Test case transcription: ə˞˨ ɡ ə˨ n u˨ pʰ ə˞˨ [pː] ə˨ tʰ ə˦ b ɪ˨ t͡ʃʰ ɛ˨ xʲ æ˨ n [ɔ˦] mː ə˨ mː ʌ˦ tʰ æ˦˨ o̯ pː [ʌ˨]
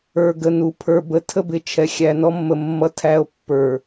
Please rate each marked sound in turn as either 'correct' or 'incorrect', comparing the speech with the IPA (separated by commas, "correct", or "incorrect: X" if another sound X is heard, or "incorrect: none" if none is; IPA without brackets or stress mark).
incorrect: b, correct, incorrect: ə˞˨